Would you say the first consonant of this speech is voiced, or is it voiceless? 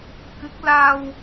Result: voiceless